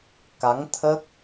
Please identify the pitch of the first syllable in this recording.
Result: rising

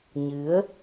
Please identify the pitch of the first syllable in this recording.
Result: rising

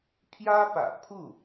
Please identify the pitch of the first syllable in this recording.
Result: high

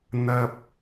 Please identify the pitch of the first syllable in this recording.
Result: high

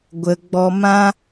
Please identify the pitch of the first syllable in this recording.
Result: low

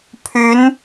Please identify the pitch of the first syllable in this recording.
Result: rising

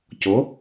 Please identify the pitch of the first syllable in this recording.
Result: rising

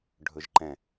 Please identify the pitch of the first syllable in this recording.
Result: low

